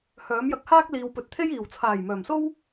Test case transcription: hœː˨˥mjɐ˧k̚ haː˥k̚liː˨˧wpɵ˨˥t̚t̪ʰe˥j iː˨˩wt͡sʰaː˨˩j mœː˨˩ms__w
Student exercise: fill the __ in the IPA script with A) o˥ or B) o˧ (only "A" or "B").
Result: A